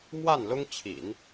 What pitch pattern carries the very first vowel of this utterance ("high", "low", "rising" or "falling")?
falling